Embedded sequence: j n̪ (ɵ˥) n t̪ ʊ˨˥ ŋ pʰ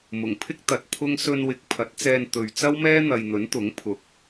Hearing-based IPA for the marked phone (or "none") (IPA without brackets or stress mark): ɵ˨˥